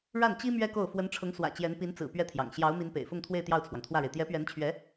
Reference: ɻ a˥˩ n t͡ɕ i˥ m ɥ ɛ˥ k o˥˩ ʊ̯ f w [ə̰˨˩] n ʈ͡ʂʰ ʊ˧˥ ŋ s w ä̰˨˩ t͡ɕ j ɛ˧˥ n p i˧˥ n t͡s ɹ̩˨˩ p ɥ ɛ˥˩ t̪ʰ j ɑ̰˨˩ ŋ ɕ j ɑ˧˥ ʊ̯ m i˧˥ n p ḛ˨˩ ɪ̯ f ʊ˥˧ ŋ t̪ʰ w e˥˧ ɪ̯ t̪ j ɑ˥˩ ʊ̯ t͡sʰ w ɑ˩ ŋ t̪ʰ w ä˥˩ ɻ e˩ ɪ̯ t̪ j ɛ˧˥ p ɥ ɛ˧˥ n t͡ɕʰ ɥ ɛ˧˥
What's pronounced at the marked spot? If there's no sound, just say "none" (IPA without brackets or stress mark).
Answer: ə˧˥